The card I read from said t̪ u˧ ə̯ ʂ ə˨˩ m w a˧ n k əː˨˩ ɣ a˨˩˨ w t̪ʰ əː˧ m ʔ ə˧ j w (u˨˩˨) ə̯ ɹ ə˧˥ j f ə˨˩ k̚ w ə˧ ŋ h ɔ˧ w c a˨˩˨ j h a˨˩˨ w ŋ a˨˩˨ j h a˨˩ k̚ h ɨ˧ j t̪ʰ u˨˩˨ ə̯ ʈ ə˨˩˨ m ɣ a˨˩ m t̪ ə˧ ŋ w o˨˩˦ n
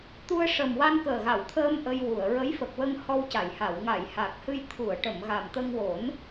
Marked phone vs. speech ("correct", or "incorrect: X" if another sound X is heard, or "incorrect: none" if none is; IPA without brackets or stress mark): correct